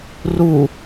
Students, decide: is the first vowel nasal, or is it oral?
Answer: oral